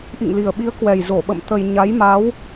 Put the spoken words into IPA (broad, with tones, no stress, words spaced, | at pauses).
ʔḭ˧˨ŋli˨˩ə̯ɓi˨˦ə̯ kwɛ˨˩j zo˧˩ɓə̰˧˨m t̪ə˧j ɲa˨˦jma˨˦w